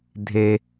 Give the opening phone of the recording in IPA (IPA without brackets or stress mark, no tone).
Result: dʱ